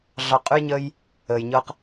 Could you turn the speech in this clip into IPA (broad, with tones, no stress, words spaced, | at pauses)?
ɮɑ˧qʼʉ˦jɲəː˦j | əː˨jɲɤ˦q